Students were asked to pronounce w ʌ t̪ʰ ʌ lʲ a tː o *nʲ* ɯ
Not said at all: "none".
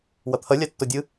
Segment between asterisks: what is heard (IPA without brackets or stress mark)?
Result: dʲ